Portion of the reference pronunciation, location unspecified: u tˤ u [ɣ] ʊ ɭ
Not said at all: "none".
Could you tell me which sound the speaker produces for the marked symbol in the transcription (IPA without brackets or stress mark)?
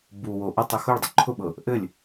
x